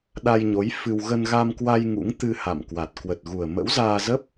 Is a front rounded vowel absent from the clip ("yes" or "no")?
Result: yes